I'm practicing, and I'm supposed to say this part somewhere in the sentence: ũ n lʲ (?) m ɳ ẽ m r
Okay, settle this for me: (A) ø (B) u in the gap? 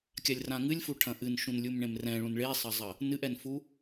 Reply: B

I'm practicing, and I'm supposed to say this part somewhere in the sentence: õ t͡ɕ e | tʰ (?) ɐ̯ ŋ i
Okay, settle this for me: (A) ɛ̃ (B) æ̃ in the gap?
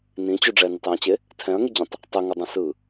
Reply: A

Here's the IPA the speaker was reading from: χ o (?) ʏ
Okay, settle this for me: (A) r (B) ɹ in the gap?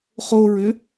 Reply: B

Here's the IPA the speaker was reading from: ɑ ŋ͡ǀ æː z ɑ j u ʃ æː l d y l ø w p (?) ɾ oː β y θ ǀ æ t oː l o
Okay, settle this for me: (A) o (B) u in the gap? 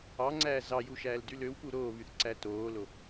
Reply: B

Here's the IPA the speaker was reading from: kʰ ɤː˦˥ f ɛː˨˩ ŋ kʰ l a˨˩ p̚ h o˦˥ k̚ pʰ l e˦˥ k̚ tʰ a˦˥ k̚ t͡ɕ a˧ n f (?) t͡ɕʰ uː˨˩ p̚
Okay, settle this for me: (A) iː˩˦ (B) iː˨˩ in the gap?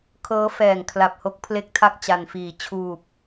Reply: B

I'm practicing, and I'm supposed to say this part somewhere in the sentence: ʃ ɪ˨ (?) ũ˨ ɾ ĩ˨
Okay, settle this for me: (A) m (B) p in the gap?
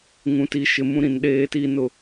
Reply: A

